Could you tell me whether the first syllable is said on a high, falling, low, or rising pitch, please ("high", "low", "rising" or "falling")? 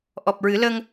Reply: low